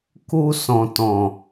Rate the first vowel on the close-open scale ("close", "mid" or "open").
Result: close